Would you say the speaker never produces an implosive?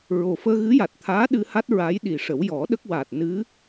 no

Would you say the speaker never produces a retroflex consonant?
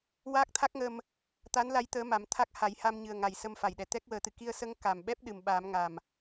yes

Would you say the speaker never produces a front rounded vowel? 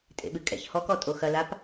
yes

